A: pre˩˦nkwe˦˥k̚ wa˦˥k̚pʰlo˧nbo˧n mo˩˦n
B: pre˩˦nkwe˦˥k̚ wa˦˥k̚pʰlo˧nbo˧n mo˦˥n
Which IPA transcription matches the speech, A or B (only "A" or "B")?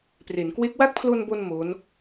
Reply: B